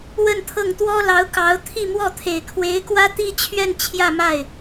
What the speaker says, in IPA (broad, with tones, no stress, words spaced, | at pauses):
wə˥˧nt̪ʰɤ˥˩ŋ t̪wɔ˥lɑ˧˥ʊ̯kɑ˧˥ʊ̯ t̪ʰi˥˧mwɔ˥˩t̪ʰe˨˩ɪ̯ kʰwe˧˥ɪ̯kwä˥t̪i˥t͡ɕʰɥɛ˥˧n t͡ɕʰjä˥˧ ma˥˩ɪ̯